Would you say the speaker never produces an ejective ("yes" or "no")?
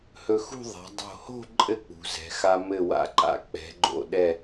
no